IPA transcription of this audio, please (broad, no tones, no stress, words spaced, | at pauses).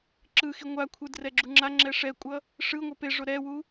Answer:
ǁɯxi ŋʷakʷʰɯ drɛɡ͡ǁuŋ͡ǁaŋ͡ǁɛ ʂɛkʷʼʌ | ʂɯŋʷʌ pe ʐoɾɛwu